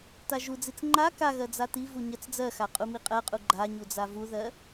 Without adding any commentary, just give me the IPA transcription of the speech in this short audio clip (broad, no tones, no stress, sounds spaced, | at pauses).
t a ʒ u d͡z i t͡s ŋ͡ǃ a k a ɣ ɜ d͡z a t i v u ɲ ɜ t͡s d͡z ɜ x a qʼ u m i qʼ ɜ qʼ u ɡ͡ǃ a ɲ u d͡z a v u ð ɜ